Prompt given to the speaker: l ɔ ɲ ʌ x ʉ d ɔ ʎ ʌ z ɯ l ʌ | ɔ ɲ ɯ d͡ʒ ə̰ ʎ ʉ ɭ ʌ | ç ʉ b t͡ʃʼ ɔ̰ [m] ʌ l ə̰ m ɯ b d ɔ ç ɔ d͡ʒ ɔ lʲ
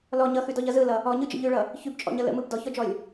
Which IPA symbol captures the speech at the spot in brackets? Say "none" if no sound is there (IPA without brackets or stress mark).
ɲ